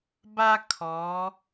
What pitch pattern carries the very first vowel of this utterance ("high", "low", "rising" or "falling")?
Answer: high